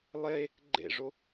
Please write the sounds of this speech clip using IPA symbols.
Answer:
lˠ e | ɡ͡ǃ ḛ ʐ o

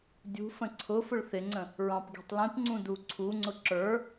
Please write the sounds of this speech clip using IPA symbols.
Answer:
dʲ ṳ f ə̃ ǀʰ ʊ f ʊ ɭ θ ɪ ŋ͡ǀ ə̃ | ɹ ɑ̃ p ɡ i̤ tˤ l ĩ p ŋ͡ǀ ũ d u ǀʰ u ŋ͡ǀ ʊ ǁ ə˞

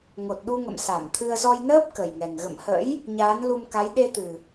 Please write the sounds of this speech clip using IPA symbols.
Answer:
ŋ o˨˩ t̚ ɗ u˧ ŋ ə̰˧˨ m s a˧˩ m t̪ʰ ɨ˧ ə̯ z ɔ˧ j n əː˦˥ p̚ k ə˨˩ j ŋ ɛ˨˩ ŋ ɣ ə̰˧˨ m h ə̰˧˥ j | ɲ aː˨˦ n l u˧ m k a˨˦ j ɗ e˧ t̪ ɨ˨˩

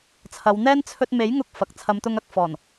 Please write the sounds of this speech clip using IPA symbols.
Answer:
t͡sʰ ɐ˨˧ w n̪ ɛː˥ n t͡sʰ ɵ˧ t̚ m e˨˥ j ŋ ʊ˧ k̚ f ɐ˨ k̚ t͡sʰ ɐ˨˧ m t̪ ʊ˧ ŋ ɐ˧ k̚ f ɔː˨˩ n

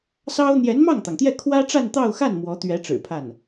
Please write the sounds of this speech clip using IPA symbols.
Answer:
s ɑ˥ ʊ̯ n̪ j ɛ˧˥ n m ɑ˥˩ ŋ t̪ ɑ˩ ŋ t̪ j ɛ˥˩ kʰ w ä˥ ʈ͡ʂ a˥˧ n t̪ ɑ˥˧ ʊ̯ x a˥˩ n m w ɔ˧˥ t̪ ɥ ɛ˧˥ ʈ͡ʂ ɻ̩˨˩ pʰ a˥˩ n

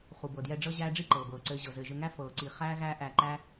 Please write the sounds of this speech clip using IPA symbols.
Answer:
χ u˨ b ɤ˨ d j ɛ˧ ɖ͡ʐ ɤ˦ ʑ æː˦ ɖ͡ʐ i˦ ǃ ɤː˨ b ɤː˨ ǀ ɘː˧ ʑ ɤ˨ z ɘː˨ ʒ ɘ˧ ŋ æ˦ f ɤː˨ ǀ i˨ χ æː˦ ɣ æː˦ ʔ æ˧ ǃ æ˦

